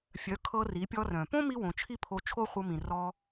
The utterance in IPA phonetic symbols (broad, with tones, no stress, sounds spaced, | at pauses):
fʲ œ˩˧ kʰ ɤ˧ r i˩˧ pʲ ɔ˧ r œ̃˩ p õ˥ m i˥ w õ˩˧ t͡ʃʰ i˥ pʰ o˧ t͡ʃʰ o˥ χʷ ɤ˧ m ĩ˩ r ɔ˧